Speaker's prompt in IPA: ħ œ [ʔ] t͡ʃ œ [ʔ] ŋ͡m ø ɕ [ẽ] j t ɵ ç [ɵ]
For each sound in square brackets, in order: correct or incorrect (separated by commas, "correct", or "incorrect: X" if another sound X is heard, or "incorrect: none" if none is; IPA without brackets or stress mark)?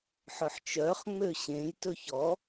incorrect: ħ, incorrect: χ, correct, incorrect: ɔ